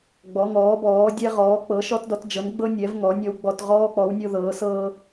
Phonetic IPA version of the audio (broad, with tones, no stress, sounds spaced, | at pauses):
ɡ͡b ɔ˩˧ ŋ ɔː˩˧ b ɔː˩˧ dʲ ɛ˧ ʁ ɔː˩˧ k͡p ɤ˩˧ ʃ ɔ˧ t d ɔ˩˧ t d͡ʒ ɤ˩˧ n ɡ͡b ɤ˧ nʲ ɛ˩˧ v ŋ ɔ˩˧ nʲ ɔ˧ w ɡ͡b ɔ˧ t ʁ ɔː˧ k͡p ɔ˩˧ w nʲ o˧ ð ɤː˩˧ s ɤː˧